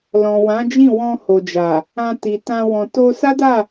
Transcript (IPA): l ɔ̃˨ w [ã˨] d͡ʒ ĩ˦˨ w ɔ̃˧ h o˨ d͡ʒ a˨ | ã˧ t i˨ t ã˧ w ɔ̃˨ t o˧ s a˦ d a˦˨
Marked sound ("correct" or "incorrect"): incorrect